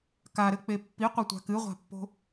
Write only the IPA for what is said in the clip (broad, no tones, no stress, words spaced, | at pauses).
kaɾɘk͡pe pːiqʷɐtʷa̤ kɨʁʷa̤pːo̤